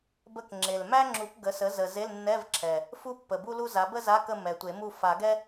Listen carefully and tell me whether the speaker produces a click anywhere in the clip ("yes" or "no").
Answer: yes